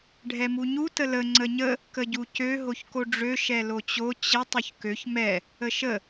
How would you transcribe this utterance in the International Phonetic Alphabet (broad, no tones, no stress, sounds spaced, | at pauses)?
ɖʱ ɛ m u ɲ u t ə l ə ŋ͡ǀ ə ɲ ə | k ə ɟ u c ø ɦ o ç k o ɖ͡ʐ ø ʃ ɛ l o t͡ɕ o t͡ɕ ə tˤ o ç k ø ç m ɛ | ə ʃ ə